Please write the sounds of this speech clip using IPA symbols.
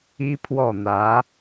i˥ pʰ w ɔ˥˩ n̪ ä˧˥

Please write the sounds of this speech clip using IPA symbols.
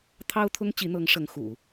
t̪ʰ ɑ˥ ʊ̯ t̪ʰ ʊ˥ ŋ t͡ɕ i˧˥ n̪ ɤ˧˥ ŋ ʂ ɤ˧˥ ŋ x ṵ˨˩˦

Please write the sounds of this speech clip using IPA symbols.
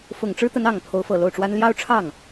f ʊ˨˩ ŋ ʈ͡ʂ ɻ̩˥ t̪ ə˧˥ n ɑ˨˩ ŋ pʰ o˧˥ ʊ̯ f ɤ˨˩ l o˥˩ ʊ̯ ʈ͡ʂ w a˥ n l j ɑ˥ ʊ̯ ʈ͡ʂʰ ɑ˥˩ ŋ

